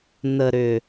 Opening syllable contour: low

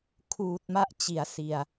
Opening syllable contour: low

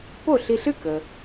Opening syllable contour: falling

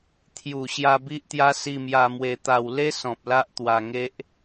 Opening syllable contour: low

